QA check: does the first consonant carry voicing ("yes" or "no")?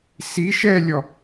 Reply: no